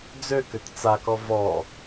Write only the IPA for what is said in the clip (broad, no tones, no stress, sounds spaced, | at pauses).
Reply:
d͡z ø k ø t t͡s a k ɔ v ɔ